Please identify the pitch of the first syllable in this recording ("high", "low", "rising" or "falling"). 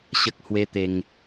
low